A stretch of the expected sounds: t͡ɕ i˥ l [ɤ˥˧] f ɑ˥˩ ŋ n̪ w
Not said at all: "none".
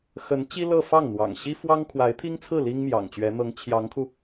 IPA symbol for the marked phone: ɤ˥˧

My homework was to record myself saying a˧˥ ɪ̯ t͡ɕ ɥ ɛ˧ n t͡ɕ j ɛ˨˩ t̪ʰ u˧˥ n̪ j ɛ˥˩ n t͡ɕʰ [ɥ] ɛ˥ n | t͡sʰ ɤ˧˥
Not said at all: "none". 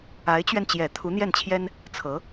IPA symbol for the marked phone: j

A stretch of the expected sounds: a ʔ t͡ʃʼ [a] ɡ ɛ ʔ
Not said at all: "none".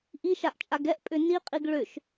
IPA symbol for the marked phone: a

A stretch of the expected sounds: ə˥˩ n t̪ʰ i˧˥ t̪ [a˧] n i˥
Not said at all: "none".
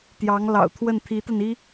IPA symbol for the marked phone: a˧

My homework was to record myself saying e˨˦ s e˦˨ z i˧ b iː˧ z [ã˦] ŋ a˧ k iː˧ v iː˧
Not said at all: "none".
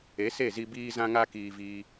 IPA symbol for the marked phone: ã˧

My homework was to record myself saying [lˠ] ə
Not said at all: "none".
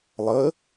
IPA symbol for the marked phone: lˠ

